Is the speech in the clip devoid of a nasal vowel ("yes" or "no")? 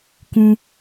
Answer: no